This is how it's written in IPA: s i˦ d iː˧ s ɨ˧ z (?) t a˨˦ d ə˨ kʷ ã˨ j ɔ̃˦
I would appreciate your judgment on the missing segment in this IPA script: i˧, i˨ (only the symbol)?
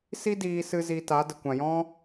i˧